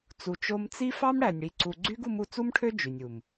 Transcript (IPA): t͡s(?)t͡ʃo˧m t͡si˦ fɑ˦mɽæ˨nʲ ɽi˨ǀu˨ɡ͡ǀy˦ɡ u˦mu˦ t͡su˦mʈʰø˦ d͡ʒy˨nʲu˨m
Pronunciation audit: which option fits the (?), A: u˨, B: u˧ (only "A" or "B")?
A